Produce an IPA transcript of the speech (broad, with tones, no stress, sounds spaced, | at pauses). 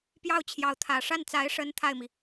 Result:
p j ɑ˥˩ ʊ̯ t͡ɕʰ j ɑ˧˥ ʊ̯ t̪ʰ ä˨˩ ʂ a˥˩ n t͡s a˧˥ ɪ̯ ʂ ə˧˥ n t̪ʰ a˥˩ ɪ̯ m i˩